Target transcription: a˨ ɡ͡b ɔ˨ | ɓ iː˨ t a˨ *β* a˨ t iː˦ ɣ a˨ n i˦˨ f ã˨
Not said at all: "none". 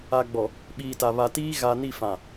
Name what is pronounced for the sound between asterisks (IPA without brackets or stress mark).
β